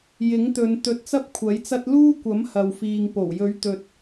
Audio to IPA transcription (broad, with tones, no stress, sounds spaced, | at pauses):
j ɪ˨˥ ŋ t̪ ɵ˨˧ n t̪ ɵ˧ t̚ t͡s ɐ˥ p̚ kʷʰ ɐ˨˥ j t͡s ɐ˥ t̚ l uː˥ kʷ ɐ˨˥ m h ɐ˨ w f iː˨ ŋ p o˨˩ w j ɵ˨˥ ɥ t̪ ɵ˨ t̚